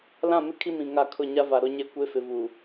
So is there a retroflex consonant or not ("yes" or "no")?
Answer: no